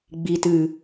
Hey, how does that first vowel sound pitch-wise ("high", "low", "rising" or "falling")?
low